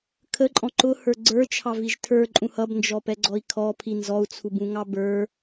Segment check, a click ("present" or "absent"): present